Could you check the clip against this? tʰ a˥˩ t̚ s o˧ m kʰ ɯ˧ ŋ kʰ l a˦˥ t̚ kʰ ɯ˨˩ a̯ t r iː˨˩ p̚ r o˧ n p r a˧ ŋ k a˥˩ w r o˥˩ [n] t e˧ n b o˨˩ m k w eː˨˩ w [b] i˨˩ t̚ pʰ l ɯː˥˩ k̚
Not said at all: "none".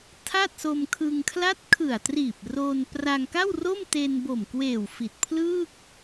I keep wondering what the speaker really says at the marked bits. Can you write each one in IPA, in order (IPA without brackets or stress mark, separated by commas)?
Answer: m, f